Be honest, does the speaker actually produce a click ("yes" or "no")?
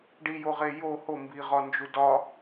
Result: no